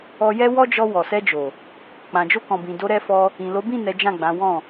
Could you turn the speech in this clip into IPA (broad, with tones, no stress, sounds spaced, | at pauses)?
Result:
ɔ˧ j ɛ˦ w ɔ˦ d͡ʒ ɔ˧ w ɔ˨ s ɛ˧ d͡ʒ o˨ | k͡p ã˨ d͡ʒ o˧ k ɔ̃˨ b ĩ˨ d o˨˦ ɾ ɛ˧ f ɔ˧ | ĩ˨ l o˨˦ b ĩ˦˨ n ɛ˨˦ d͡ʒ ã˦˨ ɡ͡b ã˨˦ w ɔ̃˦˨